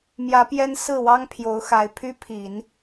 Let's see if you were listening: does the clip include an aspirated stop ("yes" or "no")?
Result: yes